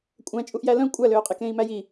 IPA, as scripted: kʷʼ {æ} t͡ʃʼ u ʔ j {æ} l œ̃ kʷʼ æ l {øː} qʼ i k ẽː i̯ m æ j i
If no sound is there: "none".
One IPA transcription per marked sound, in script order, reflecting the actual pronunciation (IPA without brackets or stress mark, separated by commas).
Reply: æ̃, æ, øː